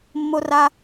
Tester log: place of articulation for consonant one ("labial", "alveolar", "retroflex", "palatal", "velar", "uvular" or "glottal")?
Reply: labial